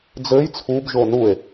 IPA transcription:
d͡z ɘ j t͡sʰ u b ʒ o n u e̯

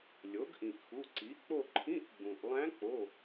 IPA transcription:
lʲ o˩˥ ɡ ʔ ĩ˩ ʔ x u˩˧˩ ǀ i˩˥ k͡p o˦˨ ǃʰ ĩ˧˥˧ ʔ ɡ͡b ũ˩ ʔ lˠ æ̃˧˥ k͡p o˩˧˩

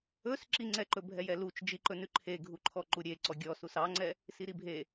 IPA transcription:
ɵ s ǁ i ŋ͡ǀ ɛ ǃ ɵ bʱ ɛ j ɛ l u t͡ʃ d͡ʒ i ǃ ɵ n ʉ ǃʰ e ɡʱ u ǃʰ ɔ ǃ u ɾʲ e ǀ ɔ ɡʲ ɔ s u s ɑ ŋ͡ǀ ɛ | s i ɾ i bʱ e

